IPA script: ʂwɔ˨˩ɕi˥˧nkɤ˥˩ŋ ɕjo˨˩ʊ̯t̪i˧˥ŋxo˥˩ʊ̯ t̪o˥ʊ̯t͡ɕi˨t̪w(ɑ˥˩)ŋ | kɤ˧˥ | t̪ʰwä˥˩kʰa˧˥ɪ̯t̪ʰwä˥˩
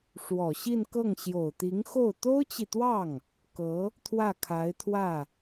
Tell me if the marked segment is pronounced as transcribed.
yes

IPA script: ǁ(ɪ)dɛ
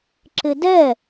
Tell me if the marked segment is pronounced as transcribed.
yes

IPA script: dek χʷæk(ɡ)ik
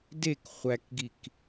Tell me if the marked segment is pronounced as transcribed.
yes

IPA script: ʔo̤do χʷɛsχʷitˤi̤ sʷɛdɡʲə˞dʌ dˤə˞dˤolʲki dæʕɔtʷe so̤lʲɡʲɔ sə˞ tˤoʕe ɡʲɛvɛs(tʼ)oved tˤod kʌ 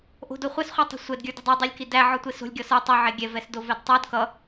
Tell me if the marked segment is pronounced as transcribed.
no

